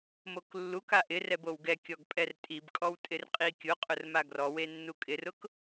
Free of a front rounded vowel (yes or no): yes